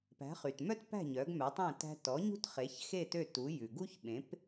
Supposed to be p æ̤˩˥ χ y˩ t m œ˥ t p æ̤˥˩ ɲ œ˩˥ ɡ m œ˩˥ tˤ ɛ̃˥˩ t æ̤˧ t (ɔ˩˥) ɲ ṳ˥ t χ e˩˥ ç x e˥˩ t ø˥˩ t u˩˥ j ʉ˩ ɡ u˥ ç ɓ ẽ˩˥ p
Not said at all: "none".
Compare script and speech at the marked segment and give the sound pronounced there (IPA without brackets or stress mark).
ɔ˩˥